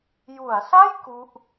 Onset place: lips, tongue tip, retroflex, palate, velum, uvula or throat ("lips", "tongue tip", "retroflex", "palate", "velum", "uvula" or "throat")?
palate